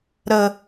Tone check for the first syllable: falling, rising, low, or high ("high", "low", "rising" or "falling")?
low